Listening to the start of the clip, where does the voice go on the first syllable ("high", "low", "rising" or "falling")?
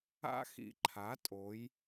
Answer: high